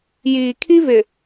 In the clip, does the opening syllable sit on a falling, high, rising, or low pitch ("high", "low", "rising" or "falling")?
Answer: low